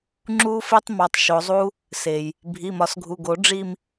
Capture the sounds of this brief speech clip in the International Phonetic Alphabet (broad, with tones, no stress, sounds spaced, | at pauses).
ŋ͡ǁ u˦˥ f e˦˥ tˤ m ɒ˩˧˩ tˤ ʃ o˨˩˦ zˤ u˦˥ | s e˩ j | bʱ i˩˧˩ m ɒ˨˩˦ s ɡʱ u˩˧˩ ɡ o˨˩˦ ɖ͡ʐ i˥˧ m